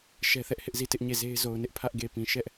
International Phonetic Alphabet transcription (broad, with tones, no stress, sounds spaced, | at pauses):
ʃ ɛ˦ θ ɛ˦ ʔ h ɪ˦ ʔ z i˦˨ t ɪ˦ ʔ ɲ e˦˨ z e˦ ɪ̯ z o˨ ʊ̯ n ɪ˦ ʔ pʰ ä˦ ʔ ɡ e˨ p ĩ˨ ʃ ɛ˦ ʔ